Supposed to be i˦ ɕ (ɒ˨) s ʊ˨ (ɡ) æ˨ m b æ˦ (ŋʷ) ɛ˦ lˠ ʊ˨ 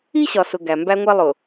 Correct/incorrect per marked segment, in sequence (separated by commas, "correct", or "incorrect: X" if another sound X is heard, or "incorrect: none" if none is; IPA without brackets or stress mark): correct, correct, correct